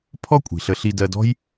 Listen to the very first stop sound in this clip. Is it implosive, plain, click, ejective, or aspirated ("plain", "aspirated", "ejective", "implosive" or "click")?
aspirated